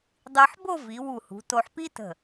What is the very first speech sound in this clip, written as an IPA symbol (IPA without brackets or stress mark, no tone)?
dˤ